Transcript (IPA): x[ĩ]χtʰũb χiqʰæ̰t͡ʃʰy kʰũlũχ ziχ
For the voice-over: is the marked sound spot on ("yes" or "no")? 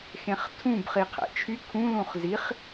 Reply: no